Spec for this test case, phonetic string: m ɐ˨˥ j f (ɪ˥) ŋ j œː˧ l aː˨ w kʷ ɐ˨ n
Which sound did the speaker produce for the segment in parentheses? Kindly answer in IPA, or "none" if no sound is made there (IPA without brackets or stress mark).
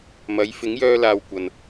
ɪ˨˥